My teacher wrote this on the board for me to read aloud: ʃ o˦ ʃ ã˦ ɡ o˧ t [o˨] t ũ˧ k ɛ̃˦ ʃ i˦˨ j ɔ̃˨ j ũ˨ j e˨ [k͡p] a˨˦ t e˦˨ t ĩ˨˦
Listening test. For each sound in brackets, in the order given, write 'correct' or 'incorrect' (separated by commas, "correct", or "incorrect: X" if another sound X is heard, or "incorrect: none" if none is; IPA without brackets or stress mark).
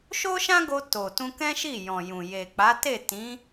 correct, correct